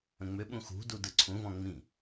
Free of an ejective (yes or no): yes